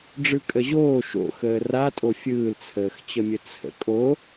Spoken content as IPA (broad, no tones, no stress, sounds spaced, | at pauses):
ɖ͡ʐ ɯ kʼ ə ʑ oː ʃ o̰ x əː r a tʼ o fʲ ɯː l t͡sʰ əː x t͡ɕ ə mʲ ə t͡sʰ ə̰ kʼ o